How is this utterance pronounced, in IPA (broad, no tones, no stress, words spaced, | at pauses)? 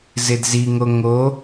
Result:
zɪdziŋo ŋo